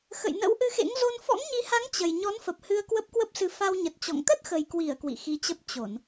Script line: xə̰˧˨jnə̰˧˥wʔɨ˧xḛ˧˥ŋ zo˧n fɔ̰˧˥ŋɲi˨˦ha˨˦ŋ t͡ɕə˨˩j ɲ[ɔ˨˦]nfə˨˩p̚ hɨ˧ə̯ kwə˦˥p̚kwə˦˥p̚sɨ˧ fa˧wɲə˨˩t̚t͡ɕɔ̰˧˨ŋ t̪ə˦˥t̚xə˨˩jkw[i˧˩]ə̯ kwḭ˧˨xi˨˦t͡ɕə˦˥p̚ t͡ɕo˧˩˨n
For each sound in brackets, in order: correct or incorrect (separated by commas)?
correct, correct